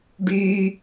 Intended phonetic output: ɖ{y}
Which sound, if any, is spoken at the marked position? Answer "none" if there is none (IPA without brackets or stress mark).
y